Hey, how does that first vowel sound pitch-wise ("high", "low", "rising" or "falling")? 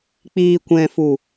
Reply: low